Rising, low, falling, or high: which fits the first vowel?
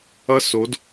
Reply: high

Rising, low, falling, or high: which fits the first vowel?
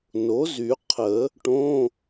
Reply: rising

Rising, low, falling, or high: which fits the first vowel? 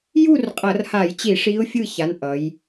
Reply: falling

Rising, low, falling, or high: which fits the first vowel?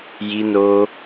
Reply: high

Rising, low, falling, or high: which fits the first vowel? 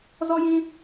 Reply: high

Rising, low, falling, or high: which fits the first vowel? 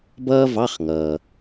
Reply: high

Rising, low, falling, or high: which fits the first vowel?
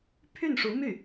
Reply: falling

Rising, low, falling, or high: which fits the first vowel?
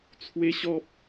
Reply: high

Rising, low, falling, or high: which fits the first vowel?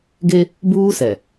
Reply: high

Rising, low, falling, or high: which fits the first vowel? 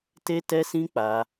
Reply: high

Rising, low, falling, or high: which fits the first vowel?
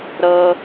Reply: high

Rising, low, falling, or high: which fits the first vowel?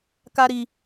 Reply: high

